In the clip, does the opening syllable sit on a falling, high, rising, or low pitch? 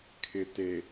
low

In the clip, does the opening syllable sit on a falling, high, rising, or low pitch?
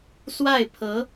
falling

